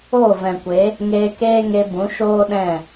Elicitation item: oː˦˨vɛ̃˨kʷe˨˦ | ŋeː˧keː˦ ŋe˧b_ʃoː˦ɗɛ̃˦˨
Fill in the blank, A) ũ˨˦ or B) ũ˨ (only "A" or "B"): A